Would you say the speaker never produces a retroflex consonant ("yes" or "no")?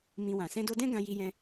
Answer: yes